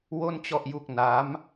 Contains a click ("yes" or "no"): no